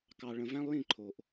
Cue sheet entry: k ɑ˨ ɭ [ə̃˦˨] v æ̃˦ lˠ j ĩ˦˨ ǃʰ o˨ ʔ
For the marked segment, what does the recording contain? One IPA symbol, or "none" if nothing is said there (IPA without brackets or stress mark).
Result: ə̃˨